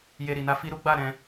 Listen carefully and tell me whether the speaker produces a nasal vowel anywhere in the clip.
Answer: yes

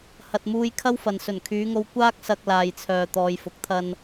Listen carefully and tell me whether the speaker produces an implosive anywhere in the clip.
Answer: no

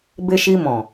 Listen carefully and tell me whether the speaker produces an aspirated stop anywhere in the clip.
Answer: no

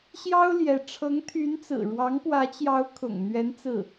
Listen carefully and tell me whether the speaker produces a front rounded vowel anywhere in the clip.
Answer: yes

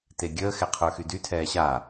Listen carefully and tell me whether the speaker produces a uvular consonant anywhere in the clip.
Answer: yes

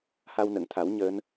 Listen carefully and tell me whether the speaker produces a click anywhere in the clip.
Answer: no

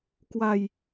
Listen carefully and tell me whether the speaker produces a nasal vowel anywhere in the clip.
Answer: no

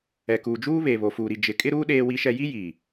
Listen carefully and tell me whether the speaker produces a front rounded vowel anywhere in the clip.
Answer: no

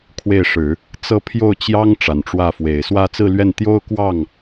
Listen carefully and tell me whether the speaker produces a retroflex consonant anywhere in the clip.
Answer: yes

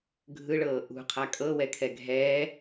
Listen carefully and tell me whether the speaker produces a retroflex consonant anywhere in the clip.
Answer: yes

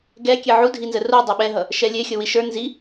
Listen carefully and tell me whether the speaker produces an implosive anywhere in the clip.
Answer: yes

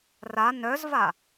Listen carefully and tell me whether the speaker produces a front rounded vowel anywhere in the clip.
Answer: yes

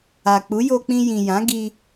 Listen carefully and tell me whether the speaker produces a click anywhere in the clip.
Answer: no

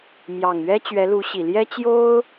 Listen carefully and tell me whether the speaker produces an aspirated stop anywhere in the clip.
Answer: no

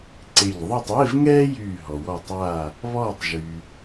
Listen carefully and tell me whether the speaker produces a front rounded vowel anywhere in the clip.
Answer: yes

